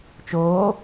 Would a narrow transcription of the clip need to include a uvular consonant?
no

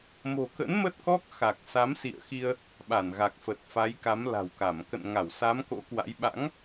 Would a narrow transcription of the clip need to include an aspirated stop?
no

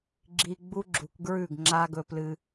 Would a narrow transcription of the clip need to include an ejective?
no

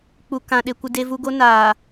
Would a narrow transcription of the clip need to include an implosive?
yes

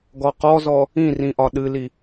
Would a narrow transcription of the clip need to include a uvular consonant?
yes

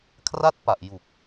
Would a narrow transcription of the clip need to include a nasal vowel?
no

